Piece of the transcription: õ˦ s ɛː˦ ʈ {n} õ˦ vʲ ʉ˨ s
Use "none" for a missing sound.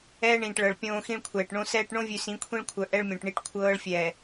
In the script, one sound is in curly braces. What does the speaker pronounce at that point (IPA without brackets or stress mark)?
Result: ɳ